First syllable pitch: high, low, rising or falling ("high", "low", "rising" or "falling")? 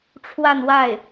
falling